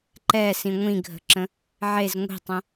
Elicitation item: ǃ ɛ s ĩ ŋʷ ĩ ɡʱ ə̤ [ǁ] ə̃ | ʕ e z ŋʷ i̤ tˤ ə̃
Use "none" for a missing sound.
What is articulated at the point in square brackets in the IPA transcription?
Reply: ǁ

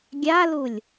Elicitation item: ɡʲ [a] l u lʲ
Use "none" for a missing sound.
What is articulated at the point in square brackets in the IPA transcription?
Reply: a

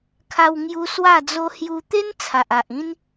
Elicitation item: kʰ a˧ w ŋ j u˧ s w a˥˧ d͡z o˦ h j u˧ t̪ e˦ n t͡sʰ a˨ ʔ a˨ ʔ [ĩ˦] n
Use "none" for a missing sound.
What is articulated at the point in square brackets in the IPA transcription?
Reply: ĩ˦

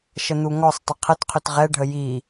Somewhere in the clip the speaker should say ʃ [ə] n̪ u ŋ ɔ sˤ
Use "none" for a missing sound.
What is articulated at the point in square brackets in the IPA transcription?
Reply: ə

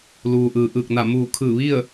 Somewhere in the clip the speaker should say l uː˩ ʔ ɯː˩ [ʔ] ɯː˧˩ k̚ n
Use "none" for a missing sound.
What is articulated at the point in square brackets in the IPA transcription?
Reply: ʔ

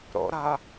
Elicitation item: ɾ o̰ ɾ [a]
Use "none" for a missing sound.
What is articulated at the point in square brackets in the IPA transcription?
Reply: ɐ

